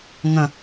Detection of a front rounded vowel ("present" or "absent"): absent